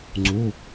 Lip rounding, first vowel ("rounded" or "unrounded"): rounded